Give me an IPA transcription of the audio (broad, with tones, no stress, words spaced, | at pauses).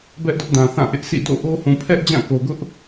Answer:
bɛ˦ʔ dʊ˦ʔdã˨θã˦˨ ʔɪ˦ʔsʰḭ˦˨ do̰˦˨ ʔo˦ hũ˨pʰɛ˦ʔ d͡ʑã˦˨ko˨ɡʊ˦ʔ